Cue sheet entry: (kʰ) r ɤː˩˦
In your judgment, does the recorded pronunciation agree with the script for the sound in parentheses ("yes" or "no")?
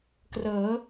no